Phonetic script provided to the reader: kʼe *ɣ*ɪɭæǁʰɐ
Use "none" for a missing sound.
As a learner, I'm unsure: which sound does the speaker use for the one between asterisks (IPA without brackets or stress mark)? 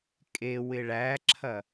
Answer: w